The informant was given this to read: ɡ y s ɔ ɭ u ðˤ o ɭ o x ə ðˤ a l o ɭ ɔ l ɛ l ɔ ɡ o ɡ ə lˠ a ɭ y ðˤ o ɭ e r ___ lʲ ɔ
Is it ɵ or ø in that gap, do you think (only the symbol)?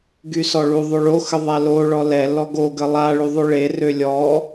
ø